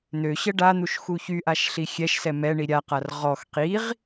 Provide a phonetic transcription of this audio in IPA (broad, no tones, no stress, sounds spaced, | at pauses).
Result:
n̪ ø ɕ ə ɖ a n̪ u ʃ x u ç y ʔ a ʃ ɬ i xʲ ɛ ʃ s ɛ m ɛ ɳ i ɾʲ a q a r ʁ ɔ x q i ʁ